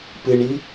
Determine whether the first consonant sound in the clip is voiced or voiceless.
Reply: voiceless